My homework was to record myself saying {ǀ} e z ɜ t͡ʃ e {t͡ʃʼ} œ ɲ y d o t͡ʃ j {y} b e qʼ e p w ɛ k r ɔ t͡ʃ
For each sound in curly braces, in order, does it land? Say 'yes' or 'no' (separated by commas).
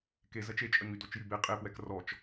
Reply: no, yes, yes